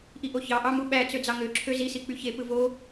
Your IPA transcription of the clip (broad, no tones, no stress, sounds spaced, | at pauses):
ʔ i ʔ o ç ɑ ʔ ɑ m u ɓ æ t͡s ø d͡z ɑ ŋ ø ǁʰ ø z i s i k͡p y ç e p ɯ v o